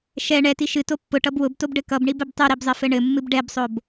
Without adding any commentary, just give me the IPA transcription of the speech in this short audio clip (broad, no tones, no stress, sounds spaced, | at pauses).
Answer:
ʃ ɛ ɳ ɛ t i ʃ ɨ t o pː ʊ ʈ ʌ b w ʊ b t o b ɖ ɘ k ʌ b ɳ i b ɘ b tˤ ɨ ɾ i b zˤ ɘ f ɘ ɳ ɘ mː ɨ b ɖ ɛ b sˤ o b